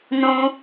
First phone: n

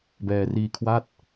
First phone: b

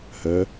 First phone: h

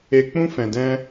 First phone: e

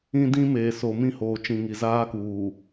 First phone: ĩ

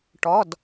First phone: ʈ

